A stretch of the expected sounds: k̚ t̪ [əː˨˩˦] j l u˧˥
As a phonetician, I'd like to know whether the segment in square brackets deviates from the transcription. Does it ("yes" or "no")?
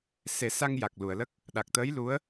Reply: yes